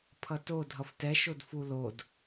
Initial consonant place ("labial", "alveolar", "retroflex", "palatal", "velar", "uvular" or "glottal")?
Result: labial